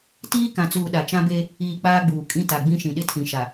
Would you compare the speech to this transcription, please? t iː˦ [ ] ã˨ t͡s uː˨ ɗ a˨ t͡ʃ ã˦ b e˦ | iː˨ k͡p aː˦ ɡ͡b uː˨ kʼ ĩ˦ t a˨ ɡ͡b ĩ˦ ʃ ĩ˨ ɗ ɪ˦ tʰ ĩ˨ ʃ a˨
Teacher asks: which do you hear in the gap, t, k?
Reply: k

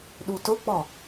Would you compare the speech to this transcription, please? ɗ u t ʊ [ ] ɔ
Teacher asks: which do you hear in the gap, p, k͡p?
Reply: k͡p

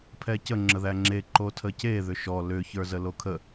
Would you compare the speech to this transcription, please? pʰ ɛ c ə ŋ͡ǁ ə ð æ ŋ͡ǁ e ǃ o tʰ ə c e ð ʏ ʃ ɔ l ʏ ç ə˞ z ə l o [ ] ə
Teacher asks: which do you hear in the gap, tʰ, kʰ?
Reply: kʰ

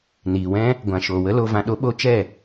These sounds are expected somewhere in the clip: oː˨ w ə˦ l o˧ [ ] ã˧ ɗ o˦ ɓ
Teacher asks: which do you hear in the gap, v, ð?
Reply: v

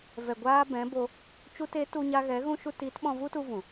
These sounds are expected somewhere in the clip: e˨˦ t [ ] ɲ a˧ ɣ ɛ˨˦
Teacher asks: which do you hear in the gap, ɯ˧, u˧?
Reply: u˧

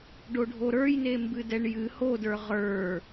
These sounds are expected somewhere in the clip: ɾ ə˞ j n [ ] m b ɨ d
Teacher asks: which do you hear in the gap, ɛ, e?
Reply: e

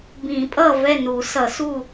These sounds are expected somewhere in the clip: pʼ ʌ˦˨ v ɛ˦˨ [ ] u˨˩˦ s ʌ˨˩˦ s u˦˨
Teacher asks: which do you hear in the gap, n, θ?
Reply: n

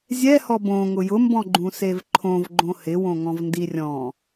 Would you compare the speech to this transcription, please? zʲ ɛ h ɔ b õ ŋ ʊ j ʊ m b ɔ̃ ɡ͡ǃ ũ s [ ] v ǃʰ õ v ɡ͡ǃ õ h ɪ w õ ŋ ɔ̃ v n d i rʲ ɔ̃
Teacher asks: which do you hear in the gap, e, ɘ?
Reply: e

